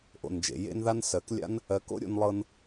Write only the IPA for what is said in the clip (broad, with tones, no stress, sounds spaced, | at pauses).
ʔ o̰˨ n d͡ʒ ḛ˨ j ḛ˧ n ð a˧ n s ɜ˨˦ k lʲ a̰˦ n | ɜ˨˦ k o̰˦ ɾʲ o̰˧ n lˠ ɤ˧ n